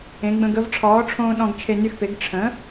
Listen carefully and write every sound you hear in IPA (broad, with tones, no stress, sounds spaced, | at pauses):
ẽ˩˥ ɡ͡b ə̃˧ ɡ ə˧ v ʈ͡ʂʰ ɔː˩˥ ʈ͡ʂʰ õː˧ ɗ ɔ̃˧ ɡ t͡ʃʰ e˧ n y˧ x p e˩˥ ɡ ʈ͡ʂʰ ə̃˩˥